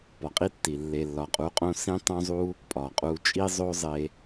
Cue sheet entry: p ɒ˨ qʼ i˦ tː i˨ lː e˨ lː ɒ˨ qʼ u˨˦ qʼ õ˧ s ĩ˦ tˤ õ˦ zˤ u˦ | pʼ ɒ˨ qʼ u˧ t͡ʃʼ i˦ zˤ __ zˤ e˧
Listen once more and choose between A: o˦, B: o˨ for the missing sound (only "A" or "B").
A